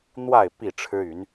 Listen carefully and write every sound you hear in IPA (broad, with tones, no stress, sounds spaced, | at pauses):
n̪ w a˥˨ ɪ̯ p i˥˨ ʈ͡ʂʰ ɻ̩˦ y˨˦ n